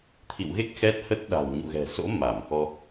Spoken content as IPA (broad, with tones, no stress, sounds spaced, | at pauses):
t̪ʰ ḭ˧˨ w ɣ e˦˥ k̚ x ɛ˦˥ t̚ h ə˦˥ t̚ ɗ a̤˨˩ w ɲ ṵ˧˨ ɣ ɛ̤˨˩ s o̰˧˥ m a˧˩ m x ɔ˧